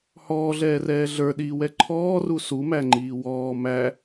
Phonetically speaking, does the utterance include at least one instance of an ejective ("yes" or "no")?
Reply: no